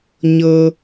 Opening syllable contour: high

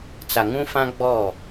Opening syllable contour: low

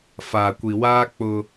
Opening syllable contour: low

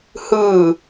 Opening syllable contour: falling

